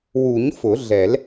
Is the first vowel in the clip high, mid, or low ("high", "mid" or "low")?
high